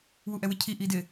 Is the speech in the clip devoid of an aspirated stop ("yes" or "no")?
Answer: no